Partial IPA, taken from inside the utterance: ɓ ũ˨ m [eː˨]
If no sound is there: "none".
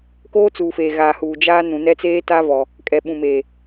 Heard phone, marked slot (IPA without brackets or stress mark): eː˨